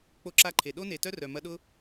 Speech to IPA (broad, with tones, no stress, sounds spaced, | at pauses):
k͡p o˦ ǁ a˦ ǃʰ e˨ ɗ o˦ n e˨ t œ˦ r œ˨ m ɐ˧ ɗ ʊ˦